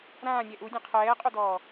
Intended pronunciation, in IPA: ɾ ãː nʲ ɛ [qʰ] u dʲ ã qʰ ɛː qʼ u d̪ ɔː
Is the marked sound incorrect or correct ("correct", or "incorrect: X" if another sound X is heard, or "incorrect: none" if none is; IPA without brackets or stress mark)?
incorrect: ʔ